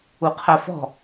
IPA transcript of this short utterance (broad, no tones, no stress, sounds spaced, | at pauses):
u qʰ æ f ɔ̤